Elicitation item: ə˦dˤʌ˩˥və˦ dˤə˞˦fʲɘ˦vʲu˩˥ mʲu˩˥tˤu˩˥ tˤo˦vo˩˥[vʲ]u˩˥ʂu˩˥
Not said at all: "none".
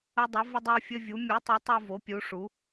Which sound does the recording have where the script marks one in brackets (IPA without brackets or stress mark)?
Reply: pʲ